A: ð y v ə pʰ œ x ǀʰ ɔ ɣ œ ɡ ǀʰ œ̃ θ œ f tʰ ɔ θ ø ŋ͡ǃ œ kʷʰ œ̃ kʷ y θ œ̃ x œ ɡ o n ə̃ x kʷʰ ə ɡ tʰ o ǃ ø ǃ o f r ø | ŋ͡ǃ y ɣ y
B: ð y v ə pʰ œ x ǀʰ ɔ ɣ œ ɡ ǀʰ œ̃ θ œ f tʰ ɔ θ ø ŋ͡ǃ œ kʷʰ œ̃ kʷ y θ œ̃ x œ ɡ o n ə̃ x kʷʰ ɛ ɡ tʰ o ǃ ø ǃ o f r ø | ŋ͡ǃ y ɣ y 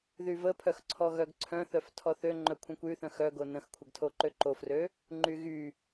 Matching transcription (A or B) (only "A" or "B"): A